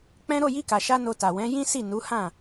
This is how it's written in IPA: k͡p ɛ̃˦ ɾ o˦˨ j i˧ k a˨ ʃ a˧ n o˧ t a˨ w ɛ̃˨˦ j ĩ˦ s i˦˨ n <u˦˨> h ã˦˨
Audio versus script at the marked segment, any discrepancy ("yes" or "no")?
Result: yes